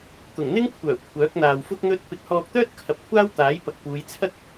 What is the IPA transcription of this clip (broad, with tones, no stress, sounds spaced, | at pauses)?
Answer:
t̪ ʊ˨˩ ŋ n̪ ɪ˥ ŋ kʷʰ œː˨˩ kʷʰ œː˨˥ k̚ n̪ aː˨ w f ʊ˥ k̚ n̪ ɵ˥ t̚ p ɪ˧ k̚ h ɔː˧ k̚ t̪ œː˥ t̚ kʰ ɐ˨˥ p̚ kʷʰ aː˥ w t̪ aː˨˥ j p ɐ˨ k̚ p uː˨˧ j t͡sʰ ɐ˥ k̚